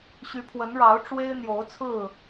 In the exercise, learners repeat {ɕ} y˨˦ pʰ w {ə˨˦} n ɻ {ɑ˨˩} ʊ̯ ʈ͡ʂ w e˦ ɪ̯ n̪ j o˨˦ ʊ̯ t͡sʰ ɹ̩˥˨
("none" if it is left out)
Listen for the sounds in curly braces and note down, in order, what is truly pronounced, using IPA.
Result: ɕ, ə˨˦, ɑ˨˦

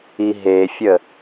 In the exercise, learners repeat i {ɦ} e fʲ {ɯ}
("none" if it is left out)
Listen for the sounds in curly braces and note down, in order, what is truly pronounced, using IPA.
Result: ɦ, ə

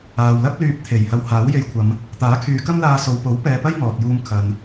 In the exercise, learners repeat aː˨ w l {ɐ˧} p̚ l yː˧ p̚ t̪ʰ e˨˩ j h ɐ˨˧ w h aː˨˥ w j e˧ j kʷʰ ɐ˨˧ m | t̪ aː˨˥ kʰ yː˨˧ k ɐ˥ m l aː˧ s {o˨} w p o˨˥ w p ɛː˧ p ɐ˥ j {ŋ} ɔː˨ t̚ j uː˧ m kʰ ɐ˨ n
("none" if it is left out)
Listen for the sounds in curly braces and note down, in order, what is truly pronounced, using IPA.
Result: ɐ˥, o˨, ŋ

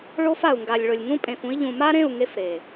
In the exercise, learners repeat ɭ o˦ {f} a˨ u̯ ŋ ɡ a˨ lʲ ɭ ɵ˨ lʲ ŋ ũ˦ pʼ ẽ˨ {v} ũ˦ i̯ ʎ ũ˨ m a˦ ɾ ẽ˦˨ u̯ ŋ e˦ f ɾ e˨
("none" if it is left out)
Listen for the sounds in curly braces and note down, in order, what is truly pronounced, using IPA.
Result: f, f

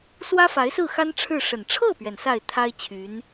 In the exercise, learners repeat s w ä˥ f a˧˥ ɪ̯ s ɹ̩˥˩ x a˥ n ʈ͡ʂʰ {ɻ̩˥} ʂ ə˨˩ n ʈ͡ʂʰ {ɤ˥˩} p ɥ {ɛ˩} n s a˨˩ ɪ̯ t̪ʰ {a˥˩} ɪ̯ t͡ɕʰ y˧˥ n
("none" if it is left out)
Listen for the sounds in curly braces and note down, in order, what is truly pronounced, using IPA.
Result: ɻ̩˥˩, ɤ˥˩, ɛ˩, a˥

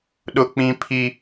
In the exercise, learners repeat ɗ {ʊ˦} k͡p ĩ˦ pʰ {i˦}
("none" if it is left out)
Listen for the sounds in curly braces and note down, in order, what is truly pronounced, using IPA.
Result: ʊ˦, i˦

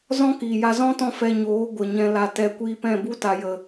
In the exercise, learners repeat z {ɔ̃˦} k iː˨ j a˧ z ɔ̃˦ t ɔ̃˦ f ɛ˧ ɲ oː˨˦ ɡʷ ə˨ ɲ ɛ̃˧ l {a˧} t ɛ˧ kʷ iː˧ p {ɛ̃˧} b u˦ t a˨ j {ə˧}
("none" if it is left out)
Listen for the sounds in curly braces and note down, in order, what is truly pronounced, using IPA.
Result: ɔ̃˦, a˧, ɛ̃˦˨, ə˨

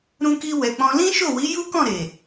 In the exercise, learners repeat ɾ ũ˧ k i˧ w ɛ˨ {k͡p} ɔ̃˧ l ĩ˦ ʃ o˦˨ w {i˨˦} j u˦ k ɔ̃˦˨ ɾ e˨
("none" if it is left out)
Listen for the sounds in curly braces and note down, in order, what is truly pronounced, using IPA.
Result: k͡p, i˨˦

